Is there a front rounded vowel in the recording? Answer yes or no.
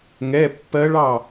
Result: no